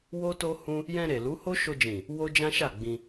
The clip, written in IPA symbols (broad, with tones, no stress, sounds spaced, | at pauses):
w o˦ t o˦ h ũ˦ | j ɛ̃˧ ɾ e˨ l u˨˦ h o˦ ʃ o˧ d͡ʒ ĩ˨ | w o˦ d͡ʒ ã˦ ʃ a˦˨ ɡ͡b ĩ˧